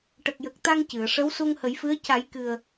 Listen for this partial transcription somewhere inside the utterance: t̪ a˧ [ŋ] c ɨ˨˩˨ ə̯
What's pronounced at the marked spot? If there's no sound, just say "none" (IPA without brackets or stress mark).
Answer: ŋ